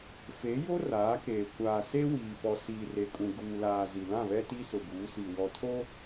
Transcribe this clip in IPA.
f e˨˦ j o˦ r aː˨˦ k eː˨ kʷ aː˨ s e˦ w iː˨ p ɔ˨ s iː˨ r e˨ kʼ ũ˨ ɡ uː˨ l aː˨ z i˨ l ã˦˨ β ɛ˦ t i˦ s ʊ˨ b uː˨˦ s i˨ w ɔ˨ tʰ o˦

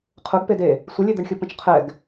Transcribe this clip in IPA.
qʰ ʊ ɡ p e d e | sʷ ə lʲ e d̪ ə ɳ xʲ ʊ p ə̃ t͡ʃ qʰ ɛ ɡ

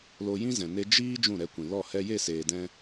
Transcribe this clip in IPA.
l o˧ j ĩ˦ z ɛ̃˨ n e˧ d͡ʒ iː˦ d͡ʒ ũ˦˨ ɾ ɛ˧ kʷ ĩ˨ l ɔ˦˨ h ɛ˧ j e˦˨ s eː˨ d ɛ̃˧

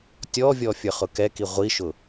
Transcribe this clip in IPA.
tʲ ɔ vʲ ɔ fʲ ə˞ χ ʊ k ɛ k i ʁʷ i ʃ ʊ

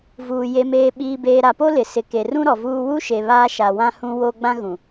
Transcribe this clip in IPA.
v uː˨ j e˨ m eː˨ ɓ iː˨ b eː˨ ɾ a˨ p o˦ l ɪ˨ s ɪ˨ k e˨ r ũ˦ ɾ ɔ˨ v uː˦ w u˦ ʃ e˨ β aː˦ ʃ a˨ w ã˦ h ũ˦ w o˦ ɡ͡b ã˦ ɣ ũ˨

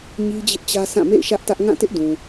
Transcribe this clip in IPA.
ɲ i˦ d͡ʑ ɪ˦ ʔ t͡ɕ ä˦ sʰ ã˦˨ m ḛ˦˨ ɪ̯ ʃ ä˦ ʔ t ä˦ ʔ ŋ ã˦˨ t ɪ˦ ʔ d ũ˨

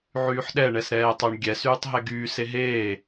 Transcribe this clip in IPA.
ʕ yː ħ ɗ ɛ ɳ ɛ s ɾ ɛː tˤ o ɳ ɡʲ ɛ s yː tˤ ɦ ɛ ɡ yː s e ɦ eː

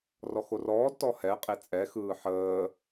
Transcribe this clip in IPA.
r ɔ x o r ɔː d t ɔ h ɛ qʼ e t͡sʼ ɛ x ɯː ħ əː

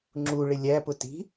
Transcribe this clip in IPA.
ŋ͡ǁ u ɭ ɪ lʲ æ p ʊ t i̤

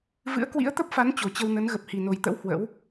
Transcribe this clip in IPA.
v ɨ̰˧˥ ə̯ k w ḭ˧˥ ə̯ t̪ ə˦˥ p̚ f a˨˦ n t͡ɕ o˨˩ t͡ɕ ə˧ w n ə˨˦ n ɣ ə˨˩ p̚ h i˨˩ n o˨˩ j t̪ ə̰˧˥ w h w ə̰˧˥ w

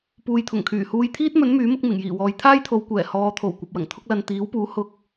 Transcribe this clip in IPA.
p uː˨ j t̪ʰ ʊ˨˩ ŋ kʰ yː˨˩ h uː˧ j t̪ʰ iː˥ t̚ m ɵ˨˥ n m yː˨˥ m ʊ˨˥ k̚ m ɪ˨˩ ŋ j iː˨˩ w ɔː˨˧ j t̪ʰ aː˥ j t̪ʰ o˨˧ w kʷ ɛː˨˩ h ɔː˨˧ t̪ʰ o˨˩ w kʷ ɐ˨ p̚ w ɐ˨˩ ŋ t̪ʰ ʊ˥ k̚ l ɐ˧ n t̪ iː˨˥ w p uː˨˥ h ʊ˧ k̚

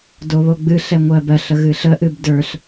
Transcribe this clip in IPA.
d o β o ɡ͡b ɨ ɬ ɛ ŋʷ ɜ b ɜ ɬ ə ɣ ɨ ɬ ə ʔ ɨ b d ə˞ ɬ

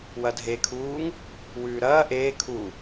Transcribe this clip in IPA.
w ɐ dʱ e kʰ uː ŋ | w ʉː ɾ ɐː ʔ eː kʰ u

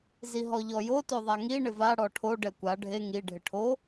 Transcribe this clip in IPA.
z i ɦ ɔ ʎ ɔ j o t o ðˤ a ŋ i ɳ ɪ v a ɽ ɔ ʈʰ o ɖ ɛ kʷ a ɖʱ e ŋ i ɖʱ ɪ ʈʰ o

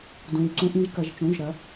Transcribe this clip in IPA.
d ũ˩˧˩ d ǀ ũ˧˩˧ ʔ ĩ˩˧ ʒ k ɐ˩˧ ʒ t͡ʃ ũ˩˧˩ ʒ ɾ ɐ˩˧

